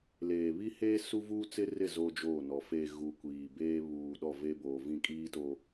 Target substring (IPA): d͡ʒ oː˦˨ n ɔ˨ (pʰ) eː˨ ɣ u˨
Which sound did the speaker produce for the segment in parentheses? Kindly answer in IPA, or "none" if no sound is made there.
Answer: f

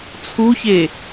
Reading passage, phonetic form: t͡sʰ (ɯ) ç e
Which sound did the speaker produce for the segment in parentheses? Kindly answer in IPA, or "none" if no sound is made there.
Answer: u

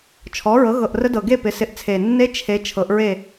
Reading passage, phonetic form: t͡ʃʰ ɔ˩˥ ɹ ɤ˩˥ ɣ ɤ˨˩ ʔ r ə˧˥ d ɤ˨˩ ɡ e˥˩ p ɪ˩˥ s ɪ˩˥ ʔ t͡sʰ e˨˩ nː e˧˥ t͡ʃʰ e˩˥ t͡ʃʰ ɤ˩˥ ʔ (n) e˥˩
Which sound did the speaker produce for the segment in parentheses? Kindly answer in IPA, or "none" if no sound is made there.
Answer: ɹ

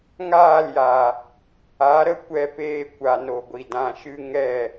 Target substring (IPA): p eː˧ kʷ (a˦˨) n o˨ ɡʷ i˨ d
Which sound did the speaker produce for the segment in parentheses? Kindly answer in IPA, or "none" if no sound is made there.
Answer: a˨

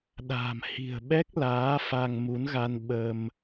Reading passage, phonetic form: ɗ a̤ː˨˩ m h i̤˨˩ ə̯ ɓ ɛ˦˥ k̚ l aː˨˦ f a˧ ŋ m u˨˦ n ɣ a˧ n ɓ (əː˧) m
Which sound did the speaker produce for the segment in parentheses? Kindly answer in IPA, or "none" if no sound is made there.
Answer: əː˧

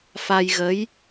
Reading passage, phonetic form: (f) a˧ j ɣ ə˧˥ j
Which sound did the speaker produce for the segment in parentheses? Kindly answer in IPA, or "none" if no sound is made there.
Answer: f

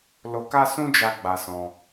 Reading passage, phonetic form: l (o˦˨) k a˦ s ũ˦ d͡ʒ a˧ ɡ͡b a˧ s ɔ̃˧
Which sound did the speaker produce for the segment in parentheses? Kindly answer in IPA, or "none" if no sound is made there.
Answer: o˧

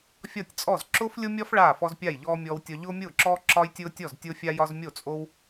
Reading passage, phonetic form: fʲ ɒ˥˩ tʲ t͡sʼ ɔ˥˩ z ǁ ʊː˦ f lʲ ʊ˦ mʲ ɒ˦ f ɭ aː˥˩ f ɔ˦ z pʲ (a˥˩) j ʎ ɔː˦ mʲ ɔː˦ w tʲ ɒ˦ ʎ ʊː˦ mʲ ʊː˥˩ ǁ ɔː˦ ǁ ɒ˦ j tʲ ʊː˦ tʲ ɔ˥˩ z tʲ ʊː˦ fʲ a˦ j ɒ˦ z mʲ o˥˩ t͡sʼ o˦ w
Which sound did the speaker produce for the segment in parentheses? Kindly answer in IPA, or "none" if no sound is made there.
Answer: a˥˩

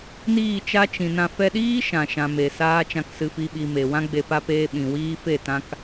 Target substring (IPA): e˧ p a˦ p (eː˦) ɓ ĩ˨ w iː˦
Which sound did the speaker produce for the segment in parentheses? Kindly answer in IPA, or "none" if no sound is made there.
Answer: eː˦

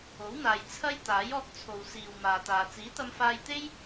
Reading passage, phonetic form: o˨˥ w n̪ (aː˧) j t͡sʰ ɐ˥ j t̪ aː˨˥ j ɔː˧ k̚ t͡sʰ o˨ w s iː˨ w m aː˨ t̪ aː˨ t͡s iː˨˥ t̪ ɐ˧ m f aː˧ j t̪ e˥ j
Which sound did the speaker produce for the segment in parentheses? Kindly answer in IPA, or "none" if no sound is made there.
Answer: aː˨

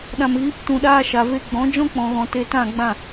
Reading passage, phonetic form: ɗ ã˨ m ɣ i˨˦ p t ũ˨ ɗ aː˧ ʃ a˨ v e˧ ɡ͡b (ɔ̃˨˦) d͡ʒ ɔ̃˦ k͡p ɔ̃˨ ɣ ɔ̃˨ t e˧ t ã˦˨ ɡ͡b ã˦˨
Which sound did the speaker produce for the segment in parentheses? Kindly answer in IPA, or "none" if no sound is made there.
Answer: ɔ̃˨˦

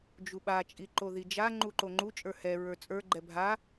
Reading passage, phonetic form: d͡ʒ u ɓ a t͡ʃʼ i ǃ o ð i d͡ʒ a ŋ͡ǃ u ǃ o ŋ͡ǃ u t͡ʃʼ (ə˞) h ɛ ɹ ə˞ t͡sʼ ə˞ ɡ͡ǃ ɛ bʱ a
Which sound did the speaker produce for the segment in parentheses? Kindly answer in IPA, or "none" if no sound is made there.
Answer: ə˞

